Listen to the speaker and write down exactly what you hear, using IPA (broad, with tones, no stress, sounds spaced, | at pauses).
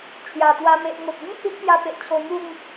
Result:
t͡ɕʰ j a˨˩ t̪ w a˧ m e˨ ʔ ŋ o˨ t̚ ɡ ĩ˦ h i˦ ʔ p j a˧ p e˨ ʔ t͡ɕʰ o˧ ŋ u˥˧ ŋ